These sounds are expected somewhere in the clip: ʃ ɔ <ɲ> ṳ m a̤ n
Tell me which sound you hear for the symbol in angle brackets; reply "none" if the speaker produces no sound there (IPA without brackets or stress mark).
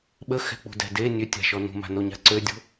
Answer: n